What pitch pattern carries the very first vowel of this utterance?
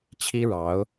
high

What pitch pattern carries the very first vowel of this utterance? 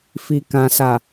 low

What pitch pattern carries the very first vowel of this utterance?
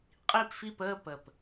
falling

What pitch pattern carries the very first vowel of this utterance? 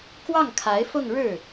falling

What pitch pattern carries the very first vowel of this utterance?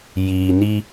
low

